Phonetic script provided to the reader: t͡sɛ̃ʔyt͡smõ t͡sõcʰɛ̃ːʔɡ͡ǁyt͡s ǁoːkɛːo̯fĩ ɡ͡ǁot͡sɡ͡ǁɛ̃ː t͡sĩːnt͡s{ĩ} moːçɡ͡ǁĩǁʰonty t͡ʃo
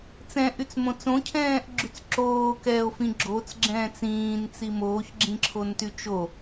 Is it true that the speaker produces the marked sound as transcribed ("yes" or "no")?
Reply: no